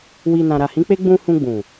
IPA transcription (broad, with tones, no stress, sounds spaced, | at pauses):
w i˨ n ã˨ ɾ a˨ h ĩ˨˦ k͡p e˦ ɡ͡b ũ˧ h ũ˧ ɡ͡b ũ˨